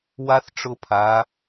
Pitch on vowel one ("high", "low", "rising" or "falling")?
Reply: high